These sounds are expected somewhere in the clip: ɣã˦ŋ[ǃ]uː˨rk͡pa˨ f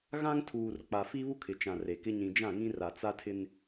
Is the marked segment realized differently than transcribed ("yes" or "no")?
yes